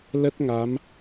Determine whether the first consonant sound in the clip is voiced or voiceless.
voiced